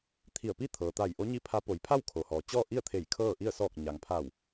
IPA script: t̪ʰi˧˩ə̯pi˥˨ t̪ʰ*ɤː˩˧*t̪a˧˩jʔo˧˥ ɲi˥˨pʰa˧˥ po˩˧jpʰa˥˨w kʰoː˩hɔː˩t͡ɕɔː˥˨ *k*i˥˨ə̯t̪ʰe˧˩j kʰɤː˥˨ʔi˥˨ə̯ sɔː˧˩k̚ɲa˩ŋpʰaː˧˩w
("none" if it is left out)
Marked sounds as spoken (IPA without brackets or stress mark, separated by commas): ɤː˩, ʔ